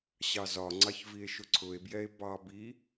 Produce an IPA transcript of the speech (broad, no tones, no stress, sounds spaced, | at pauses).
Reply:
ɕ ɑ z ɒ ŋ͡ǀ ɑ ç v i e̯ ʃ ʊ ǀʰ ʊ e̯ b j ɛ e̯ b ɑ b i